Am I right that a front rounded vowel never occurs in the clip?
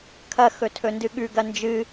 yes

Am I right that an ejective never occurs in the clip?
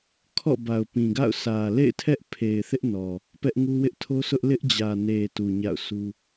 yes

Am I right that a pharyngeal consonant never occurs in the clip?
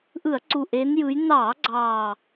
yes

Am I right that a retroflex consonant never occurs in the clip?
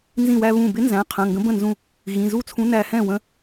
yes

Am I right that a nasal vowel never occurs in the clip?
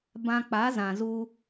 no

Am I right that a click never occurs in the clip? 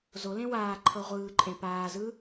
no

